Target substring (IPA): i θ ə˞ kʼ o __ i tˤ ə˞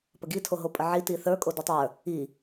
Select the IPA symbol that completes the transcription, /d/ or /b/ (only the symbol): d